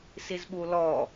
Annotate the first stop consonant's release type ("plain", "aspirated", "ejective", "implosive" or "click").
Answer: implosive